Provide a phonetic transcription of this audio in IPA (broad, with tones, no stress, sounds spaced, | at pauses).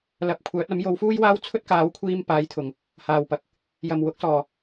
l ɐ˨˥ p̚ kʷʰ œː˨˥ t̚ ɐ˨˥ m j o˨˧ w f uː˥ j w aː˥ w t͡sʰ ɵ˥ t̚ k aː˨˥ w kʷʰ iː˧ m p aː˨˥ j t̪ʰ ʊ˨˩ ŋ | h aː˨˩ w p ɐ˨ k̚ | j ɐ˨˩ m w ʊ˨˥ k̚ s ɔː˨˩